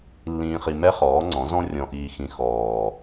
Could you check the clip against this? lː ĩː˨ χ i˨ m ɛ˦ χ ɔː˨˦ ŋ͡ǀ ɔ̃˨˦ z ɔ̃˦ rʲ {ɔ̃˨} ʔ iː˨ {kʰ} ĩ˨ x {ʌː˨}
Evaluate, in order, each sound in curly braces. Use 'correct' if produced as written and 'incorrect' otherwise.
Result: correct, incorrect: x, incorrect: ɔː˨

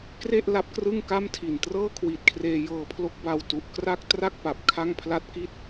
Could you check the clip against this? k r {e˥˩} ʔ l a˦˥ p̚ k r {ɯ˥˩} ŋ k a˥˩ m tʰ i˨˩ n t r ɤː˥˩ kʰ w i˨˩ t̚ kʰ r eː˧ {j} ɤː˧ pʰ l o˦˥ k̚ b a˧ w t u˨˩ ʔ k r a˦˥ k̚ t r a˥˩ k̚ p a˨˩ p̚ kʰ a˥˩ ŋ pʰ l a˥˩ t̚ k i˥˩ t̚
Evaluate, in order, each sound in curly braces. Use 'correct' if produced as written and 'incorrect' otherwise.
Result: correct, correct, correct

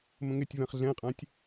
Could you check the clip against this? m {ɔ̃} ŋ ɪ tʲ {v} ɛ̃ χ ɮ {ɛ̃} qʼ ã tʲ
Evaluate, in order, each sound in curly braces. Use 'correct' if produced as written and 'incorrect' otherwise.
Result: incorrect: ə̃, correct, correct

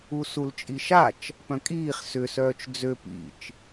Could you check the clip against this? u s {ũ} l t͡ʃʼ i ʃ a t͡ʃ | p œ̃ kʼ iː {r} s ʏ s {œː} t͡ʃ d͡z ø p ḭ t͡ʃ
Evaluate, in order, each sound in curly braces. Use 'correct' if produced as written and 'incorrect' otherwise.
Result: incorrect: u, incorrect: χ, correct

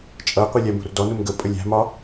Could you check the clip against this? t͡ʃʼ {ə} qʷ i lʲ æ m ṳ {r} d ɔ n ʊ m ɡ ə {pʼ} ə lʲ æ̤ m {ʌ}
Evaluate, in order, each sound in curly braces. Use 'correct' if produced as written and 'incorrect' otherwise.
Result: incorrect: ʌ, correct, correct, incorrect: ɒ

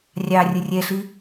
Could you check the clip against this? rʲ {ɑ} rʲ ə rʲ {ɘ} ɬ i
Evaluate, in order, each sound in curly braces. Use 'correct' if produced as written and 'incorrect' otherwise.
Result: correct, incorrect: ɛ

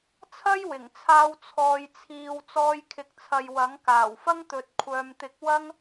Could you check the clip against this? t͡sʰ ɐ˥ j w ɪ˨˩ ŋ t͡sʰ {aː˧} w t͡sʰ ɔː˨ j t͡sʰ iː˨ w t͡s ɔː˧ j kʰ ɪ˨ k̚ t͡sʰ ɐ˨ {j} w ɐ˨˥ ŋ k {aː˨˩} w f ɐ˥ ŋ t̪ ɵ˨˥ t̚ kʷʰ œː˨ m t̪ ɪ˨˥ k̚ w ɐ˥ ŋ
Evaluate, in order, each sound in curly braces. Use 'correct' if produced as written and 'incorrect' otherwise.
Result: correct, correct, correct

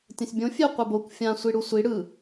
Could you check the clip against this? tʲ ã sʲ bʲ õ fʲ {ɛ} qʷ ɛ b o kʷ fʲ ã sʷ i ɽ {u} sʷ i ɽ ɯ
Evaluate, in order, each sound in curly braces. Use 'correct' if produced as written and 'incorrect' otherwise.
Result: incorrect: e, correct

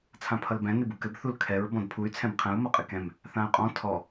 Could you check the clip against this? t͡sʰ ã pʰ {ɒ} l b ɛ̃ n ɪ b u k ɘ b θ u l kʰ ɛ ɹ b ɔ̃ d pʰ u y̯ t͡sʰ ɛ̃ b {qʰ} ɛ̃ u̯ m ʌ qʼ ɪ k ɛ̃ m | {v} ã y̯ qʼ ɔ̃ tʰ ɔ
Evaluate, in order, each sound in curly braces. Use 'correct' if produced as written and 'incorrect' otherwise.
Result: incorrect: ʌ, correct, incorrect: θ

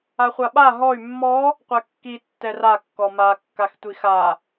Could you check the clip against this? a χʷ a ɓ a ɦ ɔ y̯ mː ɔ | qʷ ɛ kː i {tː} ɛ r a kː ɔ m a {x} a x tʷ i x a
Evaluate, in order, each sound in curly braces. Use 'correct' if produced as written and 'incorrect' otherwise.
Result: correct, incorrect: kː

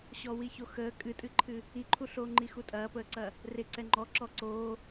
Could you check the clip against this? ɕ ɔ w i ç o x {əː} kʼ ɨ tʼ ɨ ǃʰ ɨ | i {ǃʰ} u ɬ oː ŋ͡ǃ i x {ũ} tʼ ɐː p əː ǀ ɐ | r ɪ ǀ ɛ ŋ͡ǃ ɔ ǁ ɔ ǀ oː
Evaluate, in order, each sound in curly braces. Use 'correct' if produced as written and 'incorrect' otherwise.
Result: correct, correct, incorrect: u

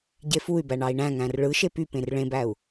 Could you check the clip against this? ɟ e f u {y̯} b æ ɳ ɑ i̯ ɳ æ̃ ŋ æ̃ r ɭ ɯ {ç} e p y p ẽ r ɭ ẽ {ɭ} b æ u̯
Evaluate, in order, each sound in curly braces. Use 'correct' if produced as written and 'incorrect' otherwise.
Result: correct, incorrect: ʃ, incorrect: none

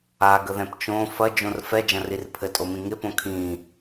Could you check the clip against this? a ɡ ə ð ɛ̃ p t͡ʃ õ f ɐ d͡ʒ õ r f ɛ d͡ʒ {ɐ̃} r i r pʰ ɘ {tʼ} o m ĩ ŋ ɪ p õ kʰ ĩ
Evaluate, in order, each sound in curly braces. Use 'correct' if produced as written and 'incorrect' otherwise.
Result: correct, correct

